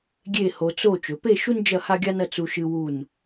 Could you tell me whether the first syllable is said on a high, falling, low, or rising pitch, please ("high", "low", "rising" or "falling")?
falling